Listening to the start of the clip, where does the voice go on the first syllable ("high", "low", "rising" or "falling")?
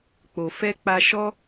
low